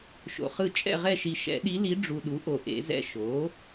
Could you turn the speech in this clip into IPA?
ʃ o̰˨ χ ɯ˦˨ t͡ʃʼ ɛ̰˦˨ ʁ ɛ˦˨ ʃ i˨ ʃ ɛ̰˨˩˦ ɗ i˧˥ l i˧˥ ɖ͡ʐ u˨ ɗ u˩˥ ʔ o˨ ʔ ḛ˨˩˦ z ɛ̰˦˨ ʃ o˩˥

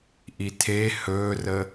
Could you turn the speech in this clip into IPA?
ʔ i tʰ e h ɵː r ə

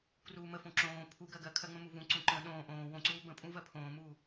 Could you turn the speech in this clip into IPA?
k r uː m ə f õ ǁ õː pʰ u ɡ ɜ ɡ ɜ kʰ ɜ ŋ͡m ə̃ m u v ũ ǀ ũ ǃ ə̃ː ɗ õː ʔ õː w õ ǀ uː b ə̃ pʼ ũ v ɜ pʰ õː m uː

